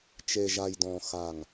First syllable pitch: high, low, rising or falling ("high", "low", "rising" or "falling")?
low